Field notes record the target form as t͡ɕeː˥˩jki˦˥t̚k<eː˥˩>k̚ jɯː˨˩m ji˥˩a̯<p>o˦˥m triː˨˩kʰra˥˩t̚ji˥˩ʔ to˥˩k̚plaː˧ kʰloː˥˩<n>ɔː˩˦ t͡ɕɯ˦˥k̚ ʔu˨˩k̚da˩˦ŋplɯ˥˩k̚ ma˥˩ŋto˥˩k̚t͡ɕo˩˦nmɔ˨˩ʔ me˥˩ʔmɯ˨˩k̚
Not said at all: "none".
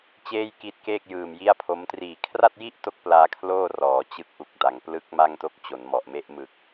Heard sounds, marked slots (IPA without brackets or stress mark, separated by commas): eː˥˩, pʰ, r